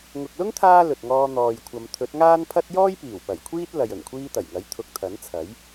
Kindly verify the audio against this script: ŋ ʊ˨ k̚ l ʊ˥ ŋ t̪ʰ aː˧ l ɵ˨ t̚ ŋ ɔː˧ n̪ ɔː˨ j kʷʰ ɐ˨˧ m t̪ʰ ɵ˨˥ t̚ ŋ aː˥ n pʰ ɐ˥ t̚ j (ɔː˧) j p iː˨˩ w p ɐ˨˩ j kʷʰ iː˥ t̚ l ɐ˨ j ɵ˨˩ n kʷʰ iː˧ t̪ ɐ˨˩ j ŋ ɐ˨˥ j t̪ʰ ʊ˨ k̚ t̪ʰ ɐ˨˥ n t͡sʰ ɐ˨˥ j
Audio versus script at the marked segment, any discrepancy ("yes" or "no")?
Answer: yes